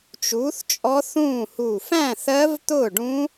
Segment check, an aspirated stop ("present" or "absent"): absent